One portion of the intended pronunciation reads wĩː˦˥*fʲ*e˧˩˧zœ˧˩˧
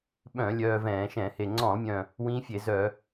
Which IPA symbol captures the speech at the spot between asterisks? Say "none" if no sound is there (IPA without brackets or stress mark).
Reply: fʲ